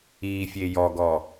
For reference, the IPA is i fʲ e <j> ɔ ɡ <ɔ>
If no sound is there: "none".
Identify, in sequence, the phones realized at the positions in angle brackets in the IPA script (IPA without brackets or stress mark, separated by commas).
j, ɔ